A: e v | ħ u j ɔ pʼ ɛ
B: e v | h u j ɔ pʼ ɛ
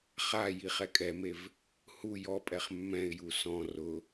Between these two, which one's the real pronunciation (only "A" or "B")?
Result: B